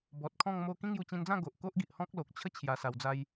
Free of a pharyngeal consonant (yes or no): yes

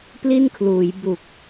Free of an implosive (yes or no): yes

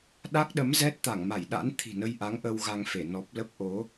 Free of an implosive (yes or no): no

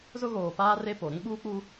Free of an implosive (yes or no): no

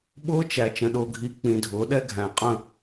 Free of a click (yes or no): yes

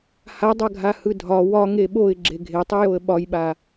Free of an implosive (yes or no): no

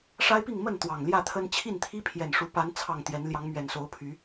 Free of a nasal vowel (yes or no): yes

